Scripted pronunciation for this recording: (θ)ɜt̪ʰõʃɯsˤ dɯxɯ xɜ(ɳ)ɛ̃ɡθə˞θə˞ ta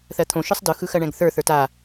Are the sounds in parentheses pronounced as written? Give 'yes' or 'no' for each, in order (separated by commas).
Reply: yes, yes